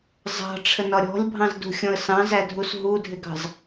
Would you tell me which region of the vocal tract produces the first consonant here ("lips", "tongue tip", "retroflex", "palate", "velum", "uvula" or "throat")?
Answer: tongue tip